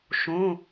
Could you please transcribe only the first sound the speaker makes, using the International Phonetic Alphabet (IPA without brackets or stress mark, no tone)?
ʃ